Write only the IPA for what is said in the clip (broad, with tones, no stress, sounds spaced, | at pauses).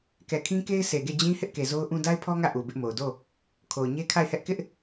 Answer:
k ɛ˨ kʰ ĩ˦ k e˦ ɪ̯ s e˨ ɡ e˦˨ d͡ʑ ĩ˦ h ɪ˦ ʔ k e˨ z o˦ ʊ̯ ʔ ũ˦ d a˦ ɪ̯ pʰ ɔ˦ ŋ ä˦˨ ʔ u˨ b ɪ˦ ʔ m o˨ ʊ̯ d o˦˨ | kʰ o˨ ʊ̯ ɲ e˦ kʰ a˦˨ ɪ̯ h ɛ˦ ʔ k ɪ˦ ʔ